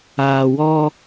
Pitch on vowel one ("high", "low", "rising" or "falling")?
low